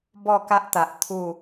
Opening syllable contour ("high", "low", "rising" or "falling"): falling